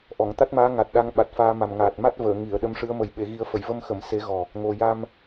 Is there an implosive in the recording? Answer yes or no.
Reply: yes